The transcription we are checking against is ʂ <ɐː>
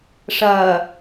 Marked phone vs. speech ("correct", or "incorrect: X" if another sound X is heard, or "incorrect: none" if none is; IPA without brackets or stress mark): correct